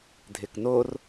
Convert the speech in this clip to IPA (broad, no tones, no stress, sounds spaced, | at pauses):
dʱ ɪ k n o r